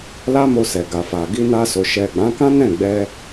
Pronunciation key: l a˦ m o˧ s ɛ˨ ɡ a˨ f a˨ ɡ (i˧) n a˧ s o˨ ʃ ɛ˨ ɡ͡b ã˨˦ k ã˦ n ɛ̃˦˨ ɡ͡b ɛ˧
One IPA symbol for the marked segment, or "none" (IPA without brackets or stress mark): i˧